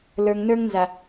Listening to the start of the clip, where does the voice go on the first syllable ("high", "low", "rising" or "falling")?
low